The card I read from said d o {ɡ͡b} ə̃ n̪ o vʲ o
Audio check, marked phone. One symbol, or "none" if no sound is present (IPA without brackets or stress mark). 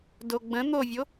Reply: ɡ͡b